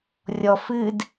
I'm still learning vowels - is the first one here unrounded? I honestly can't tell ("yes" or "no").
no